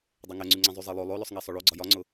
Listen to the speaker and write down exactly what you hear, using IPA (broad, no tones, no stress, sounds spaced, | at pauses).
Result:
dˤ e ŋ ɛ ŋ͡ǀ y ŋ͡ǀ ẽ zˤ y zˤ e lˠ o lˠ o l ɵ sˤ ŋ e sˤ ɵ ɭ o ɡ͡ǀ ɒ j ɒ ŋ͡ǀ ʊ